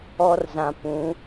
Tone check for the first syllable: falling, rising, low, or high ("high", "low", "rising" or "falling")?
high